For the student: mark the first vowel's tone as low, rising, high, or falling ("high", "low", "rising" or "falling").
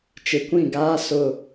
low